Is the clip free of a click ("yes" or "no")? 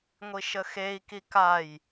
yes